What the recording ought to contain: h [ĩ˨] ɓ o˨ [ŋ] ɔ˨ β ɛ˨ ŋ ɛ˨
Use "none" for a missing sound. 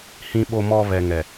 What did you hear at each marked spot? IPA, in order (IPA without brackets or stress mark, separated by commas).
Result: ĩ˨, m